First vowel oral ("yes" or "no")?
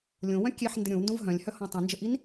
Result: no